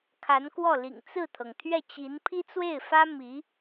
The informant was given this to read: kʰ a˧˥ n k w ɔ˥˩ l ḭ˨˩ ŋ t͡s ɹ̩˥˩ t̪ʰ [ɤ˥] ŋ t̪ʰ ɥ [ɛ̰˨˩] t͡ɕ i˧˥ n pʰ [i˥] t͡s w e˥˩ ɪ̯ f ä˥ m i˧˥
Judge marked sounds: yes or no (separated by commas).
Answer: no, no, yes